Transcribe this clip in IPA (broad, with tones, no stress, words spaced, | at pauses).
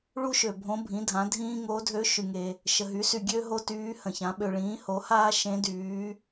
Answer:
ɭu˥ʃø˨bʱõ˧˥bʱĩ˩˥ dʱã˩˥dʱĩː˥ ŋo˧˥dʱø˧˥ ʃy˨ŋe˨ | ʃə˨ɦy˩˥sy˨ ɡʲø˥ ɦo˥tyː˧˥hə̃˨çã˩˥ ɓø˨ɭĩː˩˥ho˩˥haː˥ ʃẽ˧˥dyː˩˥